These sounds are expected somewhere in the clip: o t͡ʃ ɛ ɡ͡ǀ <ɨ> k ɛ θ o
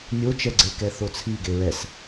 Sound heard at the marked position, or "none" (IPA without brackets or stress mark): e